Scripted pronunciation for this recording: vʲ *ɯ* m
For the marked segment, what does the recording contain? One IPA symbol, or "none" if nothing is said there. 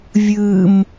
ɯ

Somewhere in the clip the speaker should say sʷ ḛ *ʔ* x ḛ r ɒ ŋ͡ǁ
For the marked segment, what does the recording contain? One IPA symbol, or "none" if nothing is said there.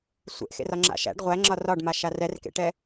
ʔ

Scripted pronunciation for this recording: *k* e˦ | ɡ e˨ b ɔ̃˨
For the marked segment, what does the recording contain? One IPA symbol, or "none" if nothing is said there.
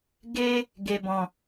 ɡ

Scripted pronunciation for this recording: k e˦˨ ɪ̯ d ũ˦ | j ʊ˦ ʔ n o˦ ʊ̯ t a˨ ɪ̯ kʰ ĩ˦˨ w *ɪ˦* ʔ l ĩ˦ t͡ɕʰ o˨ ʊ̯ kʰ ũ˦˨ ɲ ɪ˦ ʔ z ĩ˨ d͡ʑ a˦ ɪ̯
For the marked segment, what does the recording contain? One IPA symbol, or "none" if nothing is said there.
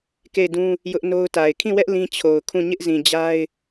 ɛ˦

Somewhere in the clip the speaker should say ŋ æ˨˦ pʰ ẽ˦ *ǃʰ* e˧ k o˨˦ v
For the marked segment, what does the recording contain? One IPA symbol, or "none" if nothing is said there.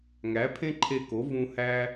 ǃʰ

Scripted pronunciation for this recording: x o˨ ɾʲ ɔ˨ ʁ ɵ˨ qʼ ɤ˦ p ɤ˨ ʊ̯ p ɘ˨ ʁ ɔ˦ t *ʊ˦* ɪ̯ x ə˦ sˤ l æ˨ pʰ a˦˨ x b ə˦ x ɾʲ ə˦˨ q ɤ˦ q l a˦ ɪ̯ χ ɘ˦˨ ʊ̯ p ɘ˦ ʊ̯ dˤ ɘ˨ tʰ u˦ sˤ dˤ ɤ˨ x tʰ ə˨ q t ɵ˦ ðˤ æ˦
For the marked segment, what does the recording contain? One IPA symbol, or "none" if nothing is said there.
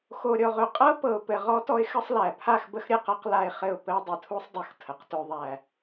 ɔ˦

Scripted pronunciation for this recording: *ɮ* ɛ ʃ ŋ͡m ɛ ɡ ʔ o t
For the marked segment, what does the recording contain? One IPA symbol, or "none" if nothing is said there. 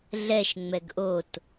ɮ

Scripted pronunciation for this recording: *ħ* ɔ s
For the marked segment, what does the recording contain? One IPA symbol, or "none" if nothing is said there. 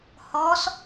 h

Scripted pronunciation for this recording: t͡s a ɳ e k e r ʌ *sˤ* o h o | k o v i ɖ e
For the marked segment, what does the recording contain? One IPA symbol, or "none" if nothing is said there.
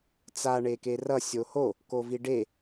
sʲ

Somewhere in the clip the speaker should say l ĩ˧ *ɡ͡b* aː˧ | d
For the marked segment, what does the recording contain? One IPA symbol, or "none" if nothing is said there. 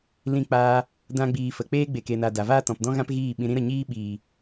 k͡p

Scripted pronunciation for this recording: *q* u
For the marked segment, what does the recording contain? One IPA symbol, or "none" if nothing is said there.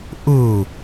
ʔ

